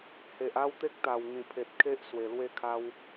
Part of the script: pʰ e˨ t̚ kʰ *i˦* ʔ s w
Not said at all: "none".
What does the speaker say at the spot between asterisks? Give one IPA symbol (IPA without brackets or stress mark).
e˦